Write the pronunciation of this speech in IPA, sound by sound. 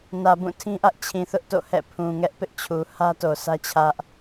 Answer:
n ä˨ b ũ˦˨ tʰ ĩ˦ ʔ ä˦ ʔ t͡ɕʰ ĩ˨ θ ʊ˦ ʔ t o̰˦˨ h ɛ̰˦˨ pʰ ũ˨ ŋ ɛ˦ ʔ p ɪ˦ ʔ t͡ɕʰ u˨ h ä˦ t o˨ s ä˦ t͡ɕʰ ä˦ ʔ

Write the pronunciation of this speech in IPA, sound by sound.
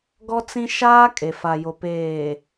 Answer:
ɡ ɔ˦ t͡s ĩ˦ ʃ aː˦ kʼ e˨ f a˨ j o˨ p eː˨

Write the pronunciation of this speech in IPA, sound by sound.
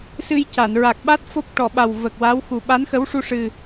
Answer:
s ɨ˧ j c a˨˩˨ n ɹ a˨˩ k̚ ɓ a˦˥ t̚ f o˦˥ p̚ ʈ ɔ˨˩˨ ɓ a˨˩ w v ə˨˩ k̚ w a˧˥ w x u˨˩ ɓ a˧˥ n x ə˧˥ w ʂ u˧ ʂ ɨ˨˩

